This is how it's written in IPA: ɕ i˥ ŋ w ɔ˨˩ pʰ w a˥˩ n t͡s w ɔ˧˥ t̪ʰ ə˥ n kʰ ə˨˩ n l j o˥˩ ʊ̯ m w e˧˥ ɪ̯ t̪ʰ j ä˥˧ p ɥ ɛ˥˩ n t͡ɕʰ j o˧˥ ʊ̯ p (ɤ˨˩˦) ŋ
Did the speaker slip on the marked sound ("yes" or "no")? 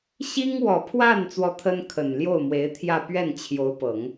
no